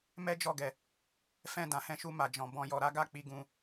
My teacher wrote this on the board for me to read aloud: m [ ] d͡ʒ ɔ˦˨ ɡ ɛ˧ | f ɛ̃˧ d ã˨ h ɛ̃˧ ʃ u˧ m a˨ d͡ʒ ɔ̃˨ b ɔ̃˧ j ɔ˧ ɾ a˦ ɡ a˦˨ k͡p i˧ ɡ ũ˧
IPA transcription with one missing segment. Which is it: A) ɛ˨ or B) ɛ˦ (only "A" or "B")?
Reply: B